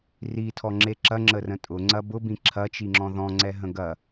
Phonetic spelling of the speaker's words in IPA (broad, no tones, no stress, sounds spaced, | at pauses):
r i tʰ ɔ ŋ͡ǁ e ǁ ɐ ŋ͡ǁ ə r ə̃ tʼ ʊ ŋ͡ǀ ɐ b ʊ b ĩ ǁʰ ɐ t͡ʃ i ŋ͡ǁ ɔ̃ ð ɔ̃ ŋ͡ǀ ɛ ɦ ə̃ ɡ ɐ